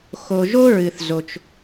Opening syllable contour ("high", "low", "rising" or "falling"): low